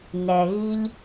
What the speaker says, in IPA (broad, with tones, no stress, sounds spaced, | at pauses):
n ɛ˨ ɣ i˧ ʎ